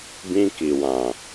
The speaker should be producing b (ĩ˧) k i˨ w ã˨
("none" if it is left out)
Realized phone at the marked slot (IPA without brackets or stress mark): ĩ˧